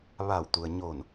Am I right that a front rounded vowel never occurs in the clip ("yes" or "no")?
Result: yes